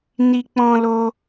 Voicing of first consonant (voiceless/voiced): voiced